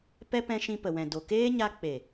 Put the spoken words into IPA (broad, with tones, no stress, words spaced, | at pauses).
pɛ˦pɛ̃˧ʃĩ˧ pə˨wɛ̃˨do˨ keː˦ɲa˧ k͡pe˨